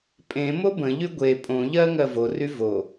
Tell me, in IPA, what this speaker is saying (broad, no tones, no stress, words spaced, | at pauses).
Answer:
pʼẽmo bə̃ʎy ɡʷe pʼõʎɜ ŋɜvory vo